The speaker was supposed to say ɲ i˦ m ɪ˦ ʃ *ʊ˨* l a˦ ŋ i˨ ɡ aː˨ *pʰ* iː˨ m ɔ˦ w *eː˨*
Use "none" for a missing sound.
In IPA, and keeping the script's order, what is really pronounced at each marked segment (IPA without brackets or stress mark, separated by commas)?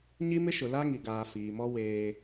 ʊ˨, f, eː˦